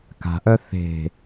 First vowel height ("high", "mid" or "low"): low